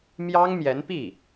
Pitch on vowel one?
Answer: high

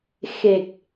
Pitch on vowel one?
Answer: low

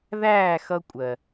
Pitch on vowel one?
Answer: falling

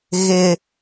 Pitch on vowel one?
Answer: high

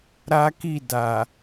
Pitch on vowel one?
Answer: high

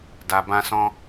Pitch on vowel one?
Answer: low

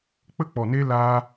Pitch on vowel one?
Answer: high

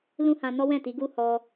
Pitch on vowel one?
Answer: high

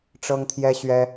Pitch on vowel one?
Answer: high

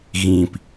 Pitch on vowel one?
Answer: low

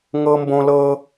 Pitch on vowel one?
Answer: high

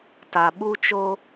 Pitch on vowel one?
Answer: low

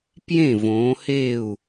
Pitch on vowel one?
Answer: falling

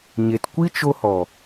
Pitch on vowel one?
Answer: low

